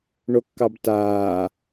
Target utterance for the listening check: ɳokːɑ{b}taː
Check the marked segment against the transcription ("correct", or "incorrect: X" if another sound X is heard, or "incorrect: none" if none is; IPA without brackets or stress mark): correct